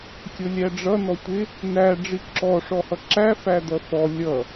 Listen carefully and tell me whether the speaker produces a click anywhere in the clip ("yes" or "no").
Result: yes